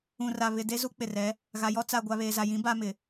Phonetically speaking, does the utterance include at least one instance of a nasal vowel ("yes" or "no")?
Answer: yes